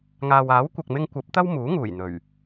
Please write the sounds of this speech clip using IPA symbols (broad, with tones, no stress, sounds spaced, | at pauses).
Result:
ŋ aː˨ w aː˨˥ w kʷ ɐ˨ k̚ m ɪ˧ ŋ kʷ ɐ˨˥ p̚ t̪ ɐ˥ w m uː˨˥ ŋ uː˨˩ j n̪ ɵ˨˩ ɥ